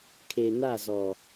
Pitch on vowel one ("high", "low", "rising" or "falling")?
low